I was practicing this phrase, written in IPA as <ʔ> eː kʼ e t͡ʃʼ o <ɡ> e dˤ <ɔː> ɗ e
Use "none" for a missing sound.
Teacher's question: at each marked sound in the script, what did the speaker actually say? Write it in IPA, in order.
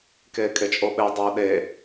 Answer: k, ɓ, oː

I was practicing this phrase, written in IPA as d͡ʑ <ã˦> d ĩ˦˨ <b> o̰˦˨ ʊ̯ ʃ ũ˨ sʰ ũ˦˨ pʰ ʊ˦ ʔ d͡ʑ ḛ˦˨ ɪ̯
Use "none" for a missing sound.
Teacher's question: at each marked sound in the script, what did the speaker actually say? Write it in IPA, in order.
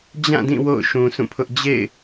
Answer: ã˦˨, w

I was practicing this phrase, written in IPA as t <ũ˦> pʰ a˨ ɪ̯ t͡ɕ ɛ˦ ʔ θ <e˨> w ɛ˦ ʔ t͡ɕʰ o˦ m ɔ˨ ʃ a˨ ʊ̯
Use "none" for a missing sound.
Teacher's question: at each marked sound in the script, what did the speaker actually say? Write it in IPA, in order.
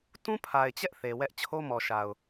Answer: ũ˦, e˨

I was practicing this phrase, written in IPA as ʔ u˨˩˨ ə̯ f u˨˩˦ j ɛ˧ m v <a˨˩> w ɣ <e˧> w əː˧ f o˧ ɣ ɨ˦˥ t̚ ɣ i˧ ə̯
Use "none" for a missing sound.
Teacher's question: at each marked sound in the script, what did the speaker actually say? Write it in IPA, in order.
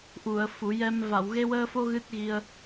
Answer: a˨˩˨, e˧

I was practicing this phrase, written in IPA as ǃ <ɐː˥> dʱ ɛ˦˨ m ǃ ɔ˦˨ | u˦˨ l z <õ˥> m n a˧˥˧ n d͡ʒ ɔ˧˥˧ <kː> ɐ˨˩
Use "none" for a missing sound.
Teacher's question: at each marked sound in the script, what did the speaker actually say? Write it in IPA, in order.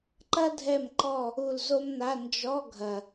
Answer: ɐ˥, o˥, ɡʱ

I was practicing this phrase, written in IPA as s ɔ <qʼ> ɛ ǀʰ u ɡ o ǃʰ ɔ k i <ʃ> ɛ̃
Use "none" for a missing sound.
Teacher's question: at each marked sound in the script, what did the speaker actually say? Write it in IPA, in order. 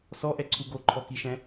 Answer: ʔ, ʃ

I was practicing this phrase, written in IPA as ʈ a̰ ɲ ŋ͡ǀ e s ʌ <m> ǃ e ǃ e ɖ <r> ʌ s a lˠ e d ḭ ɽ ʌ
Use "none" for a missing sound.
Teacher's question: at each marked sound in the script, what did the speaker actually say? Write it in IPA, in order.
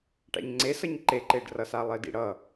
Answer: ɲ, r

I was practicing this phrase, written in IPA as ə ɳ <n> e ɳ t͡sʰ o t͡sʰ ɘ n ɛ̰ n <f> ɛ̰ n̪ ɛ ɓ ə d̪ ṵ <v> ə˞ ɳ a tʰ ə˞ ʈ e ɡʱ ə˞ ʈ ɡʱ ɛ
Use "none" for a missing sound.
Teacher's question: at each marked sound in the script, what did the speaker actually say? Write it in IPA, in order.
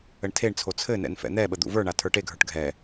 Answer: tʰ, f, v

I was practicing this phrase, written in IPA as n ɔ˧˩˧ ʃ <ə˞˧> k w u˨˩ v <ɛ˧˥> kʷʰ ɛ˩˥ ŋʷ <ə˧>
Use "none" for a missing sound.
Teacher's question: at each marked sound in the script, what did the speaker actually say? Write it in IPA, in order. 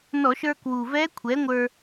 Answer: ə˞˧, ɛ˧˥, ə˞˧

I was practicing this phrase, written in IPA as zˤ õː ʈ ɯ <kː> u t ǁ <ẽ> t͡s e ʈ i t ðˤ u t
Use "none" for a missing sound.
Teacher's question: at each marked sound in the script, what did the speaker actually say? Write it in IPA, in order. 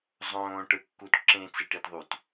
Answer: kː, ẽ

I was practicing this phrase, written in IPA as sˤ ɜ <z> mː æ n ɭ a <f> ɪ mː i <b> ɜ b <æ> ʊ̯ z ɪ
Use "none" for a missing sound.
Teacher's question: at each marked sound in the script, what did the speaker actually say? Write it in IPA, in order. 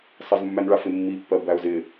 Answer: z, f, pː, æ

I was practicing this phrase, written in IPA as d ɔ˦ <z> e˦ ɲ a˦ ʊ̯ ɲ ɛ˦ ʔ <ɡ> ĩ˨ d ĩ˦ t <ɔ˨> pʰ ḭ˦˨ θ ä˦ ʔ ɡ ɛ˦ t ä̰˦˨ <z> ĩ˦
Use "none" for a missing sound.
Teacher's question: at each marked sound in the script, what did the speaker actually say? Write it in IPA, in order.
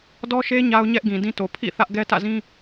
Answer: ʃ, ɡ, o˨, z

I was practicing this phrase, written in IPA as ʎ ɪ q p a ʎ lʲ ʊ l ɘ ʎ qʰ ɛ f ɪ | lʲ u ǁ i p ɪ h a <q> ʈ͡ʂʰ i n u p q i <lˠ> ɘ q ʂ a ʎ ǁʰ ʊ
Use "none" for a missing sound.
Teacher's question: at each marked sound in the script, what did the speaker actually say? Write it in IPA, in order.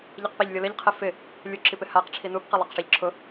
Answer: q, lˠ

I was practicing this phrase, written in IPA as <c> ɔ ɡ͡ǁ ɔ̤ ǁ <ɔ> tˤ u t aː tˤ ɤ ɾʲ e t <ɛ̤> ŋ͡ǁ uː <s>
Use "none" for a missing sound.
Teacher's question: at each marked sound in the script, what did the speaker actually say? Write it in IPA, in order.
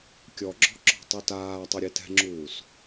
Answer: kʲ, ɔ̤, ɛ̤, s

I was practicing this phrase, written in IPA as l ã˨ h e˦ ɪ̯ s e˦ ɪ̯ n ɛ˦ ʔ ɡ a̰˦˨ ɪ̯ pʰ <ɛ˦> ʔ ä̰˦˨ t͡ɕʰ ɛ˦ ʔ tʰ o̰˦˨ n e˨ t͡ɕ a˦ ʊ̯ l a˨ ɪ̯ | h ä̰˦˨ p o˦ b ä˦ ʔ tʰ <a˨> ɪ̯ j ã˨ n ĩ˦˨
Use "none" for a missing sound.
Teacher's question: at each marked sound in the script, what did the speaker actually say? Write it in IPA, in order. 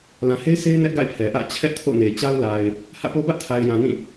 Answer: ɛ˨, a˨

